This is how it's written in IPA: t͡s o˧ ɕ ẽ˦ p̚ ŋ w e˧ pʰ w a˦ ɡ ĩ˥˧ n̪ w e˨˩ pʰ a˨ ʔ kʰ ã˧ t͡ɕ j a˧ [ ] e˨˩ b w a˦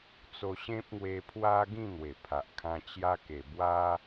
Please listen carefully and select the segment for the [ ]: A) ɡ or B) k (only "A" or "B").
B